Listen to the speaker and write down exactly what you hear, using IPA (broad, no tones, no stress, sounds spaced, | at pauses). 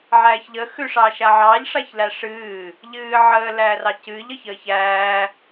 ʕ æː ç ʎ ə x ʉ ʂ ɑː ʃ a ʕ ɑː ʎ ʂ a ç l æ ʂ ɨː | ʎ ɨː ʕ əː l æː r ɑ c ɨː ʎ ə ç əː ç æː